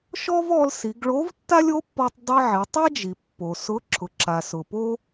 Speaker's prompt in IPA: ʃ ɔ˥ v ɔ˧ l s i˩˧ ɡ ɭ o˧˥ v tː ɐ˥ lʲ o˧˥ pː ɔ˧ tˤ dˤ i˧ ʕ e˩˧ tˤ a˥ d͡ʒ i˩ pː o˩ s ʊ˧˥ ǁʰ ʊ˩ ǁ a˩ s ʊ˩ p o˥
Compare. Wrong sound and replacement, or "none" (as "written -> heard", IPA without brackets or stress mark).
ɐ˥ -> a˥